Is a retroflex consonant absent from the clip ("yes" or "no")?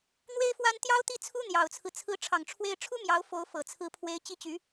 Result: no